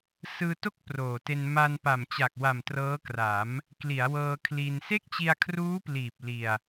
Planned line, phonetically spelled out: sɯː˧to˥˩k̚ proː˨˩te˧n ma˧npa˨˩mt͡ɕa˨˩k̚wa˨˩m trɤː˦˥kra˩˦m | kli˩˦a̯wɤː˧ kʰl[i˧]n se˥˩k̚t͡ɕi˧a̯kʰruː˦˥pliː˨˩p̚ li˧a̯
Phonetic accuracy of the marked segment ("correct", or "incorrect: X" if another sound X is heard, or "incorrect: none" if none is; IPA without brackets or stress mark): correct